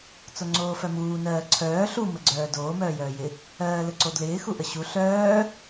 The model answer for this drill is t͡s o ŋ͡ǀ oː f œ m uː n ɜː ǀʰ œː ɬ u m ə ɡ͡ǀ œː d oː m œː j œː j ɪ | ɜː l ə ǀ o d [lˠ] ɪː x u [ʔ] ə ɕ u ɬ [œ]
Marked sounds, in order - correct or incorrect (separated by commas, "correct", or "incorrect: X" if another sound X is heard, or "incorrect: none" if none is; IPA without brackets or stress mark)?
incorrect: l, correct, incorrect: œː